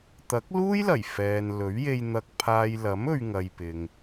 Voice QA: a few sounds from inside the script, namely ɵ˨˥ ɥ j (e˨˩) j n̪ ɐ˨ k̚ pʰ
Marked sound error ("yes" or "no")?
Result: yes